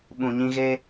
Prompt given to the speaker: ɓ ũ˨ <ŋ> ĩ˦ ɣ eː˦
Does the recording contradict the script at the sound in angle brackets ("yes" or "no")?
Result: yes